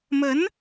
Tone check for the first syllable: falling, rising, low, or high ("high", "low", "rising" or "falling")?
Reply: rising